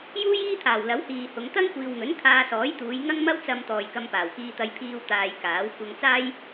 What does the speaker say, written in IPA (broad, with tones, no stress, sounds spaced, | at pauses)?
j uː˥ j iː˥ t̪ʰ aː˨˩ w l ɐ˨˥ w h iː˨ h ʊ˨˧ ŋ t̪ ɐ˥ ŋ kʷ iː˨ w ŋ ɵ˨˥ n kʰ aː˧ s ɔː˨˥ j t̪ uː˨˧ j ŋ ɐ˥ ŋ m ɐ˥ w t͡s ɐ˧ m t̪ ɔː˨ j k ɐ˧ m p aː˨˩ w k iː˧ t̪ ɐ˧ j pʰ iː˧ w t̪ aː˨ j k aː˨˥ w kʷ ɐ˧ ŋ t͡s aː˥ j